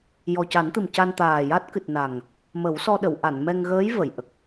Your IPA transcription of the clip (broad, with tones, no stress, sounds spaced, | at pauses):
j ɔ˨˩ c a˨˩˦ n t̪ ɨ˨˩ m c a˧ n t̪ aː˨˩ j a˦˥ t̚ k ɨ˨˩ t̚ n a˨˩ ŋ | m ə˨˩˦ w s ɔ˧ ɗ ə˨˩˨ w ʔ a˨˩˨ n m ɛ˧ ŋ ɣ əː˧˥ j v ə˨˩˨ j ʔ ə˨˩ k̚